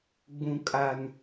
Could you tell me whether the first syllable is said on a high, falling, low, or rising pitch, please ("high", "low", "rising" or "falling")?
low